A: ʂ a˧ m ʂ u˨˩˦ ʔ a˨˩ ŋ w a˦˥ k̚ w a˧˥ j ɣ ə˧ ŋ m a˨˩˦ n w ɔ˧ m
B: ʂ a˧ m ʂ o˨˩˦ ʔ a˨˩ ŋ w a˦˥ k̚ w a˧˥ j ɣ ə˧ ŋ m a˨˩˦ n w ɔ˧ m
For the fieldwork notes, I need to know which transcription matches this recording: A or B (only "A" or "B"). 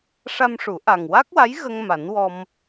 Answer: A